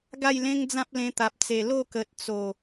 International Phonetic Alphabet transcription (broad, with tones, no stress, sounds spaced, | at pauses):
ɡ a˥˧ j l ẽ˦ ŋ d͡z ã˦ p̚ l ẽ˧ t̪ a˨ p̚ t͡s e˨˩ l o˥˧ k ə˨ t̚ t͡s o˨˩